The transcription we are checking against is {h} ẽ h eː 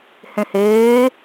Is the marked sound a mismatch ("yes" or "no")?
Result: no